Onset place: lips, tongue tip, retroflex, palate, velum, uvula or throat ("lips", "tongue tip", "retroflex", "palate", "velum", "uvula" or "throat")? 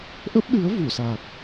throat